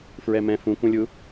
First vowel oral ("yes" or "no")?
yes